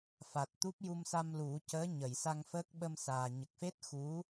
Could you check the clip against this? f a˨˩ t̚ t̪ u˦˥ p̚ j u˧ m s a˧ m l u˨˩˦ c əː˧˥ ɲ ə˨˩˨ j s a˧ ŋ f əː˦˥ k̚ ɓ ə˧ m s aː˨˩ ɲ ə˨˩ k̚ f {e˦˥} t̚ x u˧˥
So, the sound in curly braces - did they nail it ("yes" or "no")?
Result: yes